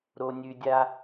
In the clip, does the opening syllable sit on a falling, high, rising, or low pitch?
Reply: low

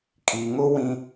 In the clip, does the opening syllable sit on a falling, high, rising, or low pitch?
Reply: low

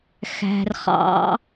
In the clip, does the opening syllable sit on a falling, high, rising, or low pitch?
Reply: low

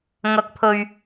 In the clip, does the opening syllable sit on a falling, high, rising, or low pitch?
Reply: low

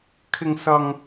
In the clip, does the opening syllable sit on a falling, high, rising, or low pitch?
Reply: high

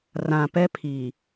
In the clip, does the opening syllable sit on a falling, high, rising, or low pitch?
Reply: low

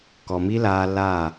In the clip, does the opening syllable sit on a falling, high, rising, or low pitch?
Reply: low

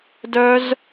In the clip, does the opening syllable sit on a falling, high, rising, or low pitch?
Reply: high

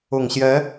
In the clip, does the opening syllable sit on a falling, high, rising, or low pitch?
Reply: low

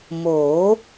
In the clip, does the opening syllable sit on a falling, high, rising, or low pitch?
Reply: rising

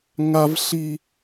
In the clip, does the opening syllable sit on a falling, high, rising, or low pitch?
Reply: high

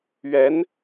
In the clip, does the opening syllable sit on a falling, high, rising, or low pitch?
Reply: rising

